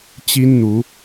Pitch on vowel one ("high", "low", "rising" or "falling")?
high